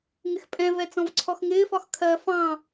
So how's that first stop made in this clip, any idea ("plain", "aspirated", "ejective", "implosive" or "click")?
ejective